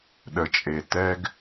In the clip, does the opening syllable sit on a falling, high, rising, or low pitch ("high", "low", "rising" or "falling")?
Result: low